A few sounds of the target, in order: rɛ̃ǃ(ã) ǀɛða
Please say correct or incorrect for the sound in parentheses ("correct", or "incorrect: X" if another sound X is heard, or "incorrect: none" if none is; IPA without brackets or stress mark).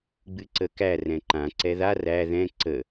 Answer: correct